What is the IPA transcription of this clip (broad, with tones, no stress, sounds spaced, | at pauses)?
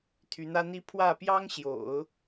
t̪ʰ y˧˥ n̪ ä˥ n̪ i˥ pʰ w ä˥˩ p j ɑ˥ ŋ ɕ j o̰˨˩˦ ʊ̯